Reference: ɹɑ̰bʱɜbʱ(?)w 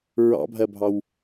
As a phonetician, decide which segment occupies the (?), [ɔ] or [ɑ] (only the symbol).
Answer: ɑ